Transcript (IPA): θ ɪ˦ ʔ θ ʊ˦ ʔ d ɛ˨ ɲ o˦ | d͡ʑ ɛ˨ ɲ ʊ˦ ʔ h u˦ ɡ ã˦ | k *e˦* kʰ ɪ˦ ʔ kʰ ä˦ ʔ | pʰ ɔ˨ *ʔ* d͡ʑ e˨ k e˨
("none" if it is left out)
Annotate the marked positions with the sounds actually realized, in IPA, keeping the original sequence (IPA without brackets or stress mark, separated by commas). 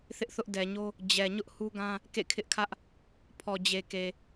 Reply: ḛ˦˨, none